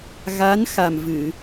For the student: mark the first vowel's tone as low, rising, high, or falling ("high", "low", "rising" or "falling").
rising